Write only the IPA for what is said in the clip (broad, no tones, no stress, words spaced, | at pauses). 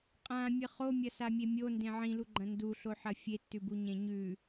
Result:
qʼãmʲɨ χomʲɐsamʲe mʲondẽ ʕĩluɡ͡ǃɐ̃ nduɬoħɐ fʲetːʉbuɲẽ ɲʉ